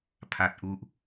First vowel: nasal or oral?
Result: oral